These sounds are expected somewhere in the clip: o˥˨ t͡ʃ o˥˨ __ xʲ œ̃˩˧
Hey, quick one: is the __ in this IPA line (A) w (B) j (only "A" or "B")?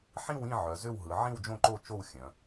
A